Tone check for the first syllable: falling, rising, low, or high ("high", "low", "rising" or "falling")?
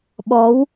rising